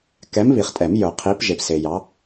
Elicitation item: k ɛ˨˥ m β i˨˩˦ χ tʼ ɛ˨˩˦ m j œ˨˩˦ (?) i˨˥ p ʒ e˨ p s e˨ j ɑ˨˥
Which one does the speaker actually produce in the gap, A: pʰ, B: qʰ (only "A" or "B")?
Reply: B